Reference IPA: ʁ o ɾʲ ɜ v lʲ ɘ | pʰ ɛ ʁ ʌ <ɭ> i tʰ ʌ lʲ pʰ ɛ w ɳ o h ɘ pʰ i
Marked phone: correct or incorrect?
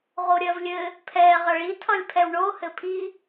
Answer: correct